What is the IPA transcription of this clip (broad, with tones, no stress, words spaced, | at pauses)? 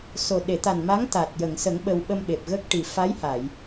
so˨˩ ɗe˨˩˨t̪a˨˩n ma˧˥ŋ t̪a˨˩t̚ jə˨˩˨ŋsə˨˩˦ŋ ɓə˧w ɓə˧mɓe˨˩p̚ɣə˦˥k̚ʈi˨˩ fa˧˥jha˨˩˨j